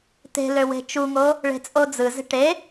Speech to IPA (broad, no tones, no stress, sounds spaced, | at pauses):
t e̤ l ø w e̤ t͡ʃ u ŋ o | ɭ e̤ t͡sʼ o d͡z ɯ z e̤ ʈ e